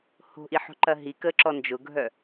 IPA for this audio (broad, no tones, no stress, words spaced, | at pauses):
ho̤ʔiħo̤ǃɐ ɦikəːǁɔ nd͡ʒʊɡʱœ